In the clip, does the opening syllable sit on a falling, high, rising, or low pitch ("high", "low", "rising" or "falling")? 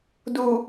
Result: low